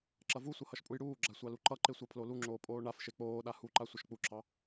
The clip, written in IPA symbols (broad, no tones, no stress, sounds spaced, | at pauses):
ǁ ɐ v u sʷ ɐ h ʌ ʃ pʼ u j ɽ uː ɡ͡ǁ a sʷ ɑ l u ǃ ʌ ǃ e sʷ ɑ pʰ l o l u ŋ͡ǁ oː pʼ oː ɳ a f ʃ e k͡p oː ɗ a h u ǃ a sʷ ʌ ʃ k͡p u ǁʰ ɑ